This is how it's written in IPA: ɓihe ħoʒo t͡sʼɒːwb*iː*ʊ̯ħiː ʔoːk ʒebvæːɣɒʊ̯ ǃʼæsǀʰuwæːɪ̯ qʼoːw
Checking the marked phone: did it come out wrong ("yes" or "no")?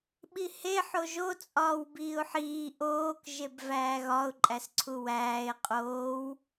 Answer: no